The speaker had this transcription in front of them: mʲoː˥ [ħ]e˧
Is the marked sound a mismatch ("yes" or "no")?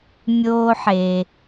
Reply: no